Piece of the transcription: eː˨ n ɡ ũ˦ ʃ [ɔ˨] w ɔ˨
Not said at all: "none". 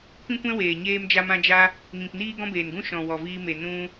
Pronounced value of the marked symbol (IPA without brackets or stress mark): ɔ̃˨